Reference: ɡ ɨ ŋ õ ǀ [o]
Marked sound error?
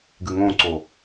no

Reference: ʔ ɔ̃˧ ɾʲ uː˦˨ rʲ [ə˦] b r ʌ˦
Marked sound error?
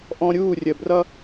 yes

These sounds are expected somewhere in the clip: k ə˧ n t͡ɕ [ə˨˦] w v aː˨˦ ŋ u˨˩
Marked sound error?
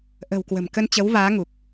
no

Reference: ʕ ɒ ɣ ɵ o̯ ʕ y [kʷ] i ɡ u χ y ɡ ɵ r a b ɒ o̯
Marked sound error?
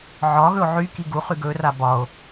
yes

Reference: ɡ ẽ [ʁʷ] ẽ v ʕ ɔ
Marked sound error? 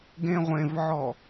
no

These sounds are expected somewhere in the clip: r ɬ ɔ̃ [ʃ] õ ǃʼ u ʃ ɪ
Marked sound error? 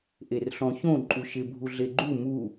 yes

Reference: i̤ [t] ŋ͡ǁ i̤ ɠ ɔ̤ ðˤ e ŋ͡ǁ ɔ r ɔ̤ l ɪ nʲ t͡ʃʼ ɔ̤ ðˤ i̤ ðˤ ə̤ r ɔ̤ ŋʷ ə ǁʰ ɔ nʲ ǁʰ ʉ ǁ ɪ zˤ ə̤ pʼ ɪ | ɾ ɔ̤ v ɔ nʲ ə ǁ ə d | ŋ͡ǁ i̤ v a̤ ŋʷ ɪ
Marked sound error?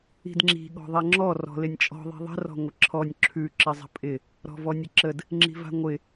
yes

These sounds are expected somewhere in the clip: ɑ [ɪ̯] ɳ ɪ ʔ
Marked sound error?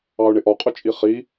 yes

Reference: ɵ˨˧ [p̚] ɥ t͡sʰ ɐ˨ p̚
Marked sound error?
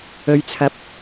yes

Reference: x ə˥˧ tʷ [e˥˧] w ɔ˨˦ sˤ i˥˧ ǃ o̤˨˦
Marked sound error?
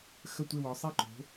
no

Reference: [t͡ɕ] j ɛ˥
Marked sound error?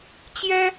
no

